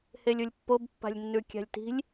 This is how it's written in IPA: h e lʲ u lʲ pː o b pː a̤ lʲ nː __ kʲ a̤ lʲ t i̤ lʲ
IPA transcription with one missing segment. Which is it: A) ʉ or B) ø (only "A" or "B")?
A